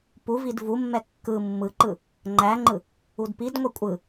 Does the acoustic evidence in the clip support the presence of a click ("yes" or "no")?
yes